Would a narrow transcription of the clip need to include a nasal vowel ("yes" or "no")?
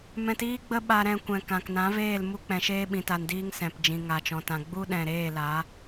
yes